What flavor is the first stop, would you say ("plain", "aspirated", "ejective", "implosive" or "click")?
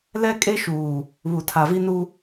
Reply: ejective